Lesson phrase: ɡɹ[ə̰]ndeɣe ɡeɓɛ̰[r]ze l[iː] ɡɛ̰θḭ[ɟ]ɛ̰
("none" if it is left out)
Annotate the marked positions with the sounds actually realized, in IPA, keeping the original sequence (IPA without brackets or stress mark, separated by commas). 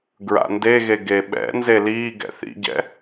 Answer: a̰, n, iː, ɟ